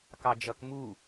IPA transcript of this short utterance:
k ɑ d͡ʒ ʌ k m u

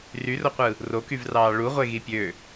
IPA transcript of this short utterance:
r y r o qʷ ɯ | r o k y v r ɑː ɭ u ʁʷ e ɣ i pʲ ø

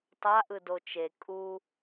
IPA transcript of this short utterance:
tˤ a ʔ ɯ d o t͡ʃ e kʼ u

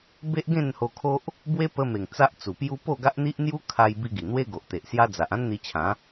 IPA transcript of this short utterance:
b e˦ ʔ ɡ ẽ˥˧ n h o˧ kʰ o˦ ʔ | b w e˦ p ə˧ m e˨˩ ŋ t͡s a˦ ʔ t͡s u˨˩ p j u˦ p o˥˧ ɡ a˦ ʔ n̪ i˦ ʔ n̪ j u˦ kʰ a˧ j b i˧ ɡ i˨˩ n̪ w e˦ ɡ o˨ ʔ t̪ e˨ ʔ s j a˦ d͡z a˨ ʔ ã˦ n n̪ i˧ t͡ɕʰ ã˨˦

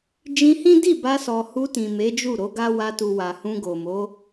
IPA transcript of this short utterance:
d͡ʒ ĩ˧ h ĩ˦ d i˦˨ b a˧ s ɔ˨ h u˧ t ĩ˨ m e˨˦ d͡ʒ u˦˨ ɾ o˨˦ ɡ a˦ w a˧ t u˨ w a˨ h ũ˧ ɡ o˨ m o˨˦

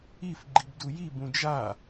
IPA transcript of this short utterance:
i f ɡ͡ǃ i b d u j i b ũ d͡ʒ a

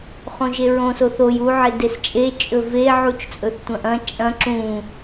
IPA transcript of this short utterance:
χ õ ʒ e ɹ õ s o θ o j u ʕ e d e s t͡ʃʼ e t͡ʃʼ ɵ v e ʕ u t͡ʃ t͡sʼ ɵ θ tʷ ɐ̃ ʔ ɐ̃ t͡ʃʼ ɐ̃ ǁ ũ

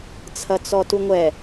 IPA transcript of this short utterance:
t͡sʰ ɐ t͡s ɔ t u ŋʷ ɛ

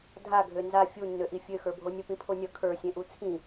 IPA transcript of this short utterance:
dʱ a ɡʱ ø n z a fʲ u nː ø ʔ i fʲ ø x ə˞ bʱ o nʲ o p ĩ pʰ o nʲ ʌ kʰ ə˞ sʲ ẽ ʔ u t͡sʰ ĩ

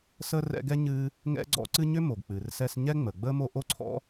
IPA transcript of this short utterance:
s ə˥ r ɛ̰˦ ɡ ɛ˥ ɲ ɨː˥ | ŋ ɛ̰˥ ɡ͡ǀ ɔ̰˥ ǀ ɨ˥ ɲ ʏ˥ m o˩ ɡ k͡p ɨː˩ r s ɛ˦ s ɲ ɛ˥ ŋ͡m ə˩ ɡ͡b əː˥ m o˦ ʔ o˥ ǀʰ ɔ̰˥

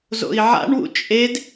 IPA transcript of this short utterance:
z o̰ i̯ ʕ a̰ ɳ w ṵ t͡ʃʼ e d

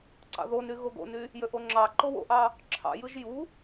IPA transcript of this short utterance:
ǀ ɑ̰ ð o n y ɣ o ɡ o̰ n y | j ø ʔ o ŋ͡ǁ ɑ ǃ o w o̰ ʔ ɑ | ǁʰ ɑ̰ j ɯ ʒ j u

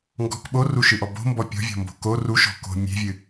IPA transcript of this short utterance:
ŋ ɡ ɔ̤ k ɓ o r u ʃ ɨ ʔ ɔ b o̤ m b ɔ pʲ ɔ̤ vʲ ɔ̤ m b o̤ k o r u ʃ ɔ̤ k o̤ mʲ e̤ vʲ ɨ

